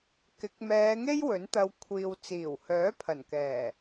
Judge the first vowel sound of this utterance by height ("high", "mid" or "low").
high